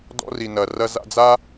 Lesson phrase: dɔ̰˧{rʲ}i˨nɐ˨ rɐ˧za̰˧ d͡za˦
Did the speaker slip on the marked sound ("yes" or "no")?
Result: yes